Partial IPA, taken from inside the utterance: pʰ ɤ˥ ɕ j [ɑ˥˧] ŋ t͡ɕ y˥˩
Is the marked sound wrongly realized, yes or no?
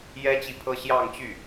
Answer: no